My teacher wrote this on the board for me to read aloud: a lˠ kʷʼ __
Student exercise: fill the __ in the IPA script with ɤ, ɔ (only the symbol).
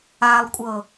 ɤ